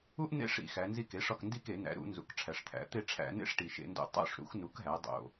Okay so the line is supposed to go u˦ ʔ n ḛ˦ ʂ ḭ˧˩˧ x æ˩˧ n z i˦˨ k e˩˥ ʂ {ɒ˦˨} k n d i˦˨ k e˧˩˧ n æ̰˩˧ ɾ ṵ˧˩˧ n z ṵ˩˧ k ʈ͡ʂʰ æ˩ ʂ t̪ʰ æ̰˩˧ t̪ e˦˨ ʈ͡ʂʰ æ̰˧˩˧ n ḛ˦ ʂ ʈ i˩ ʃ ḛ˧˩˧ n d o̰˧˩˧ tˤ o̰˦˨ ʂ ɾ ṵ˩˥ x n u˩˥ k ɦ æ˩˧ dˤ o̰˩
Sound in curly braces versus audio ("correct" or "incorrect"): correct